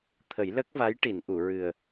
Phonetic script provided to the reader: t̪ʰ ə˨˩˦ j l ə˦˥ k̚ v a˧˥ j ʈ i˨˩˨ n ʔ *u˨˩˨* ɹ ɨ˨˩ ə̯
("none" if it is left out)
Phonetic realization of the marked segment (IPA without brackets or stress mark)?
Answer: u˨˩˨